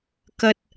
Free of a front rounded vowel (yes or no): yes